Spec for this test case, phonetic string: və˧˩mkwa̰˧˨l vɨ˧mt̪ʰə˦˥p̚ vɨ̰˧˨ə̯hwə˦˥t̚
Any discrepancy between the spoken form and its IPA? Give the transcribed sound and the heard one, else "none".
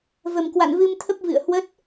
l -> n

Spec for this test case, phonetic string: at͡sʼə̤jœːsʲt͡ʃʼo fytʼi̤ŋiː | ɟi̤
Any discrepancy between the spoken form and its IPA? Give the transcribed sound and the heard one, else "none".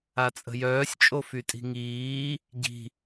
none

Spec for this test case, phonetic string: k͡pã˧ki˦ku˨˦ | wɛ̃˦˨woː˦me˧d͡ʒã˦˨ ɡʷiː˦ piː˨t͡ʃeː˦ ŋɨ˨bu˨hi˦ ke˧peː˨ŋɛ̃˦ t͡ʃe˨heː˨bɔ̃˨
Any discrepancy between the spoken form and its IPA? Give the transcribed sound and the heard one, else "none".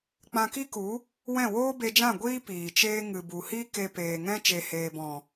m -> b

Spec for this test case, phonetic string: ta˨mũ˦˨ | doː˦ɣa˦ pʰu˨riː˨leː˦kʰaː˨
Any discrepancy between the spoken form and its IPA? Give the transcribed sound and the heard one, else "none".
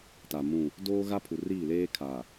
iː˨ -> iː˦˨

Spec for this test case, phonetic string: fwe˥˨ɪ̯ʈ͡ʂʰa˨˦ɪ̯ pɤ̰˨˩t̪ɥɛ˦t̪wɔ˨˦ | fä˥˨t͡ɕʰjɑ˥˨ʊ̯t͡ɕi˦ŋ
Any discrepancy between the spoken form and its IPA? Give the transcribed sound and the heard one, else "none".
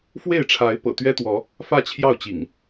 i˦ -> ḭ˨˩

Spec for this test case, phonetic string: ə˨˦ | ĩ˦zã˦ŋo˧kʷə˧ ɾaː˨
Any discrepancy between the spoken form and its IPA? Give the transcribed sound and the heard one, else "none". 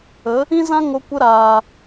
none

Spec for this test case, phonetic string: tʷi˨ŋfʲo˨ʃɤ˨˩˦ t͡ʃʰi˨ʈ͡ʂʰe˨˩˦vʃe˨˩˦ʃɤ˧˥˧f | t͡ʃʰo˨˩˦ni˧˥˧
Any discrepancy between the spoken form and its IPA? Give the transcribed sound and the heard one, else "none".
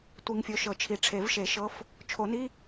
none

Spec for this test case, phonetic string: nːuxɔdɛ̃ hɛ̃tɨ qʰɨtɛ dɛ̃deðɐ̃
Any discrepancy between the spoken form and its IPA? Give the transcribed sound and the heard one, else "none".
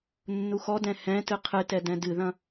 e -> ɨ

